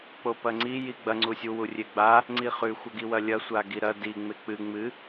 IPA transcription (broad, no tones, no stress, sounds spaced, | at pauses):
k͡p o p ɐ ŋ͡ǀ i j i ɡ͡b ɐ ŋ͡ǀ u sʲ u w u rʲ e ɡ͡b a | ŋ͡ǀ i χ ʉ xʷ ɐ ɡ i w ɐ lʲ ɐ sʷ a ɡ i ɾ ɐ d i ŋ͡m e k͡p ɨ ŋ͡m ɨ